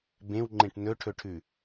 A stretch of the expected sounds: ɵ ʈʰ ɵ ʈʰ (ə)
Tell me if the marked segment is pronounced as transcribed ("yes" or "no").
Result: no